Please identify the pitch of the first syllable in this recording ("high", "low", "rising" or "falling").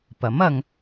rising